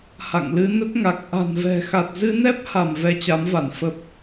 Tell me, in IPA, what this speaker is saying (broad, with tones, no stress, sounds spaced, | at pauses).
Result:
h a̰˧˨ ŋ l ɨ˧ n ə˦˥ t̚ ŋ a˨˩ k̚ ʔ a̤˨˩ n v ɛ̤˨˩ x a˨˩ t̚ z ɨ˧ n ɛ˦˥ p̚ h a˧˩ m v ɛ˧ t͡ɕ a˨˦ m v a˧˩ n f ə˨˩ p̚